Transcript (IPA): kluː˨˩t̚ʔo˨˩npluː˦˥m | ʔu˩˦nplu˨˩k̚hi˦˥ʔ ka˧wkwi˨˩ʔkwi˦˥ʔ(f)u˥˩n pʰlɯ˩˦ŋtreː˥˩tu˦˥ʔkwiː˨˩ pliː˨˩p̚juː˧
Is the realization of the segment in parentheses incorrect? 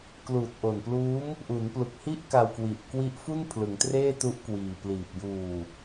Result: no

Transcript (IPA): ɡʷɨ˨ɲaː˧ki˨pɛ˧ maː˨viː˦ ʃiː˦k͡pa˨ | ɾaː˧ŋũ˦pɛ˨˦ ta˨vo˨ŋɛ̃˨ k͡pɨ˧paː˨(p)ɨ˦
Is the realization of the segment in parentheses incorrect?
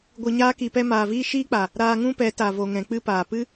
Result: no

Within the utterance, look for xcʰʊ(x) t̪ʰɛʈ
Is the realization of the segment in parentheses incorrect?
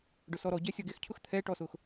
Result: no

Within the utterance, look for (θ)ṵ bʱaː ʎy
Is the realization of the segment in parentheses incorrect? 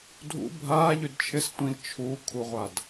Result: yes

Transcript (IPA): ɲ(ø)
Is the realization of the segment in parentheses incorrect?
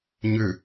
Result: no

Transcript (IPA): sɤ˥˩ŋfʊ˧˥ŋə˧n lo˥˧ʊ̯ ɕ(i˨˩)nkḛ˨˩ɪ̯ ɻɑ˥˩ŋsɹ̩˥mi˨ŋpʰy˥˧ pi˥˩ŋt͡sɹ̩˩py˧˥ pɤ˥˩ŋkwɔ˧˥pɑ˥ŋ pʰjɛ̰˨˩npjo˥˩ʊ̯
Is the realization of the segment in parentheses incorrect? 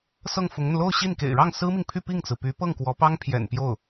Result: yes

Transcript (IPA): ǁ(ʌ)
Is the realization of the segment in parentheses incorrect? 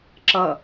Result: no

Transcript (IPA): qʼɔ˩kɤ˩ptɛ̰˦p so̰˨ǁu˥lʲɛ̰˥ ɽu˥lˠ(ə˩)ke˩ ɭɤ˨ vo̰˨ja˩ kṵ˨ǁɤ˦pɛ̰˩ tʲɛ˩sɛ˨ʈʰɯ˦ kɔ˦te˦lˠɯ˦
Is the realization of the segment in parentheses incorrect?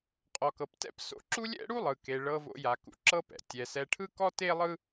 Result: yes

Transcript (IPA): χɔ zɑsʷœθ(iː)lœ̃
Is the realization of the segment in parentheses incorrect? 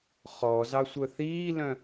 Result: no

